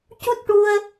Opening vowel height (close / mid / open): close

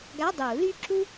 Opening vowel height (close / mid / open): open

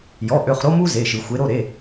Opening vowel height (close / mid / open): mid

